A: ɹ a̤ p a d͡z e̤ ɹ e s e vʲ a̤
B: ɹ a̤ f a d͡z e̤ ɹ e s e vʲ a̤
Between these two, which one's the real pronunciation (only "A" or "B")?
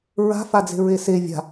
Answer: B